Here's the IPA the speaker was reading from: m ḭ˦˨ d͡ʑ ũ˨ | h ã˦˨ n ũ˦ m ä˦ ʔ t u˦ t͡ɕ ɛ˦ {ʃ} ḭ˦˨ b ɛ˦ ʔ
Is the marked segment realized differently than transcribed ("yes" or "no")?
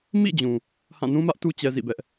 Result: yes